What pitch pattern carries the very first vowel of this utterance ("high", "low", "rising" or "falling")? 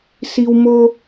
high